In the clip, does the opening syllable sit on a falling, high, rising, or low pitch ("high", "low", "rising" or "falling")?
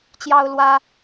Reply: high